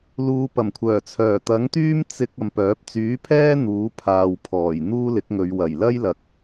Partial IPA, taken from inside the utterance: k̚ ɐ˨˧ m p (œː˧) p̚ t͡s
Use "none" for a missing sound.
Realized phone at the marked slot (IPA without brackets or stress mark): œː˨˥